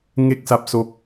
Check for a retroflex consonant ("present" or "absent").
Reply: absent